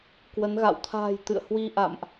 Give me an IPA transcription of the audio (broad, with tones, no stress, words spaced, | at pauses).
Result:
kwə˨˦nɣa̰˧˨w t̪ʰa̤ː˨˩j t̪ɨ̰˧˨ə̯hwi˧ʔa̰˧˨mʔ